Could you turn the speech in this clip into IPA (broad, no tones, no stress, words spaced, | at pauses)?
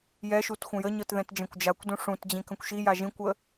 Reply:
jɛʃut xʷə̃jəɲɤt ðɛ̃td͡ʒɛ̃kʷd͡ʒakʷdũ ʂũtd͡ʑĩ kə̃kʷʃija ʒĩkʷə